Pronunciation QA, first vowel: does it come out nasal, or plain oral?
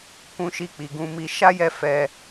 nasal